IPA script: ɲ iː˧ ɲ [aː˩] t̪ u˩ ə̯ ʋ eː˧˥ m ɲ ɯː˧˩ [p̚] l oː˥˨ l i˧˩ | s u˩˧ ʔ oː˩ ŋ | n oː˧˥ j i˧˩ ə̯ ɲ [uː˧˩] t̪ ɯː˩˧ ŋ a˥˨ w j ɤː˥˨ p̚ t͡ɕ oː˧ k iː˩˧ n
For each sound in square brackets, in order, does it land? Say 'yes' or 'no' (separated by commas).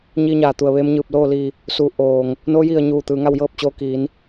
yes, yes, yes